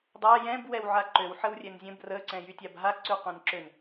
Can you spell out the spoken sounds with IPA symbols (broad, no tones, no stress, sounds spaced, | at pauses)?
dˤ a j ɛ̃ b w ɛ w ʕ a ǃ ø w ħ ə w rʲ ɛ n zʲ ə̃ b r ə ǀ ɛ̃ j y tʲ a b ɦ a ǀ y qʷ ɛ̃ n ǁ ø n